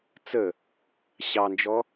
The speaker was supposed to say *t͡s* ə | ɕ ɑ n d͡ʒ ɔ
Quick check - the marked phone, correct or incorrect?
correct